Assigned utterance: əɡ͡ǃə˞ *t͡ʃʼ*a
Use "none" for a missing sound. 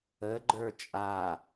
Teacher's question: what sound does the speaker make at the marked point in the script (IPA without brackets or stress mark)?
t͡ʃʼ